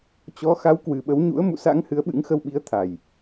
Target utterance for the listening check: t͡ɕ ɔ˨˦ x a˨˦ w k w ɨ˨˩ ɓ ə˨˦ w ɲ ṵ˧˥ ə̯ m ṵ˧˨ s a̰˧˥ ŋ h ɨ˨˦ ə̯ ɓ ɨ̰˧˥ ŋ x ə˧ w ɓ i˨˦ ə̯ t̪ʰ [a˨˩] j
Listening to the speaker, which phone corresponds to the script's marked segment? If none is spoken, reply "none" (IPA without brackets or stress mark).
a˨˩